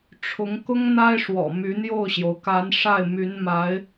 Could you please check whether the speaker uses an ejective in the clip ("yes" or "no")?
no